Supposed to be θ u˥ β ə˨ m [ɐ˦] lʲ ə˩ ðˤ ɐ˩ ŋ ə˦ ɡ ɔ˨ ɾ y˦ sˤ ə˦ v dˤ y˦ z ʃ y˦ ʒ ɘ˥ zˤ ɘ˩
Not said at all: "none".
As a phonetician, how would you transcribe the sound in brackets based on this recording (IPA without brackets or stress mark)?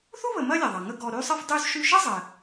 ɐ˥